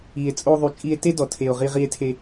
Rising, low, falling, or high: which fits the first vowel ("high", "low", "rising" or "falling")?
low